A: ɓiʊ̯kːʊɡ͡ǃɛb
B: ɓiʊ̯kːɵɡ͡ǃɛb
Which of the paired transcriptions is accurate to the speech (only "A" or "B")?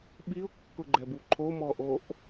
A